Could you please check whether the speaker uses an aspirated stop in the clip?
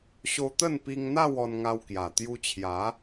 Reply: yes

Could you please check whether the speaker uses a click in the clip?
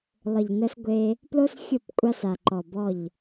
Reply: yes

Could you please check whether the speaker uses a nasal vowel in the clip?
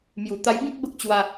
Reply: yes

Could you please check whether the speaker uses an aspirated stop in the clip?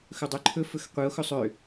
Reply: yes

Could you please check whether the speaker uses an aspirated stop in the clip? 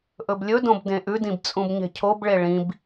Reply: yes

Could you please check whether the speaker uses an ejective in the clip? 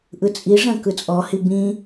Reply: yes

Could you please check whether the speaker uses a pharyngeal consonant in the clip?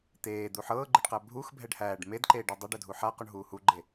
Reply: yes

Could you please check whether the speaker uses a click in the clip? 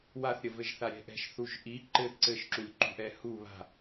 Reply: yes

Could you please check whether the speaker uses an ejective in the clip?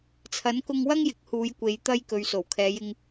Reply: no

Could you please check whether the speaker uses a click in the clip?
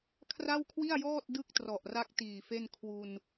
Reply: no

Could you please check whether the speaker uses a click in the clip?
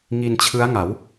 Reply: no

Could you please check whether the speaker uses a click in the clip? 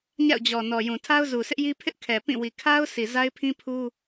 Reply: no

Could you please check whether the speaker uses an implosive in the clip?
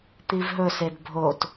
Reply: no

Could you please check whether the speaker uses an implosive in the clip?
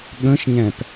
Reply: yes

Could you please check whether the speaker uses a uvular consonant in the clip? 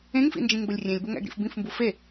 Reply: no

